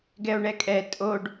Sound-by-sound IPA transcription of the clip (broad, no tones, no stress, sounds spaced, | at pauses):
ɡ ɛ o̯ ɳ ɛ kʼ ɛ tʼ o ɖ